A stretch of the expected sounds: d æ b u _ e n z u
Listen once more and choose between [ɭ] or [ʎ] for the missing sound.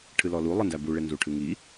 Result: ɭ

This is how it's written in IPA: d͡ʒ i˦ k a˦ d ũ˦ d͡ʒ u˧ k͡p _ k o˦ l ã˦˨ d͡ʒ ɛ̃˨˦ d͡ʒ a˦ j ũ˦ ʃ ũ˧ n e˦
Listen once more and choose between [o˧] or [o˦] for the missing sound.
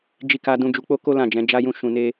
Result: o˦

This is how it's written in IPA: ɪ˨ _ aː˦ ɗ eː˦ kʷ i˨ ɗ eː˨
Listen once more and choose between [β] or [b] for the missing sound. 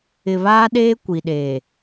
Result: β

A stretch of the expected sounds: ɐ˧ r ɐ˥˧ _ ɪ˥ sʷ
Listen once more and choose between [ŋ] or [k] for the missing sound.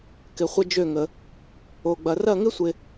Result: ŋ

